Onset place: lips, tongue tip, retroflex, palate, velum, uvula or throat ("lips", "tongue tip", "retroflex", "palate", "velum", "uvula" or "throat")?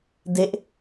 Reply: tongue tip